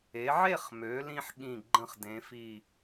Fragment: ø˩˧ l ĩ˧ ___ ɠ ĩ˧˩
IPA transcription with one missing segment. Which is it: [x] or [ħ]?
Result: ħ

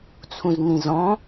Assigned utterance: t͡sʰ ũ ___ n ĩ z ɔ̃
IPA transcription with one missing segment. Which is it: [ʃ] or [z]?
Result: z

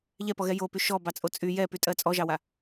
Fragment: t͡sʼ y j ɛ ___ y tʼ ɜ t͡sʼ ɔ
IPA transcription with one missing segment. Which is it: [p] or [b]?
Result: p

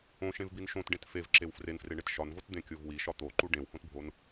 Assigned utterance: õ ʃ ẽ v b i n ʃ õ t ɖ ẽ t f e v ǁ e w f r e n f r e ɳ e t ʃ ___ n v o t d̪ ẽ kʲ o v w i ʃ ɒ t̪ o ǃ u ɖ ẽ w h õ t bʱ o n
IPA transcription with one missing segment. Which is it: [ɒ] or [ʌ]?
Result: ɒ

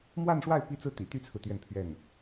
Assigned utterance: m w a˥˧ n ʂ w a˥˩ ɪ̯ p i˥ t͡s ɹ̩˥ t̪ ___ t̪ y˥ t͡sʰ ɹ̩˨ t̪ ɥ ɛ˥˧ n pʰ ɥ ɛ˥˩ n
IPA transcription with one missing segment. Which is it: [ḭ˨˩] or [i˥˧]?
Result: ḭ˨˩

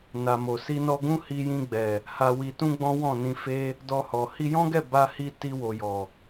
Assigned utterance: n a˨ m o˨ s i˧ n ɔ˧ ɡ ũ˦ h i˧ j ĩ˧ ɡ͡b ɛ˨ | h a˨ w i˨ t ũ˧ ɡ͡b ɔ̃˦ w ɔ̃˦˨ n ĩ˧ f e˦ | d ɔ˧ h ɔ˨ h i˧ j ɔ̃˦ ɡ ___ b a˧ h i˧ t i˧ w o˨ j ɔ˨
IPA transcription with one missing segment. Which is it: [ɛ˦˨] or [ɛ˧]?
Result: ɛ˦˨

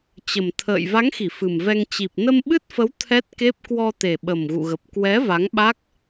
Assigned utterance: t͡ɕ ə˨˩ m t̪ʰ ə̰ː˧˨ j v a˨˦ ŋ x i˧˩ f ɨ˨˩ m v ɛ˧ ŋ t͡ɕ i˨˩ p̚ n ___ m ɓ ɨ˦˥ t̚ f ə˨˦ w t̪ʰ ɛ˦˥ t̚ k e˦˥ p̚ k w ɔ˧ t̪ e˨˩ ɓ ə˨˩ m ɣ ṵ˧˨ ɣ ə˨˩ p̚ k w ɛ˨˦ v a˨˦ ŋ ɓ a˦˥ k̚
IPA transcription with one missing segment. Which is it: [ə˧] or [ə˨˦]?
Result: ə˧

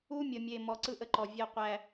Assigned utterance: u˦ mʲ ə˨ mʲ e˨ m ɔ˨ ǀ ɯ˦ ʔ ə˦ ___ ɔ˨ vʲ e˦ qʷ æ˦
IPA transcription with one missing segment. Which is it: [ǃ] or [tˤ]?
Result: ǃ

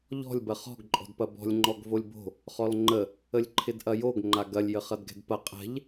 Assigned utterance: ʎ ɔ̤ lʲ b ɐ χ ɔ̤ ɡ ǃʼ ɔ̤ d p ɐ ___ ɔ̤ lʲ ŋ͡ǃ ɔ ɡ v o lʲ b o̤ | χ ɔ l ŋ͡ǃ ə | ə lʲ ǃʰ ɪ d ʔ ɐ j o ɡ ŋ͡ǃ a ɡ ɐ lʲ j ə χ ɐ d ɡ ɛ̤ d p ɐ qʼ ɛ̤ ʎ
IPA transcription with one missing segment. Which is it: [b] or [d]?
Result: b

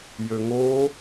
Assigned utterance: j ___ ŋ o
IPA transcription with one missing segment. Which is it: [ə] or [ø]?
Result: ø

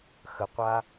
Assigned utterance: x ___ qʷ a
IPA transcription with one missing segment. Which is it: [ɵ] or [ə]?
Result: ə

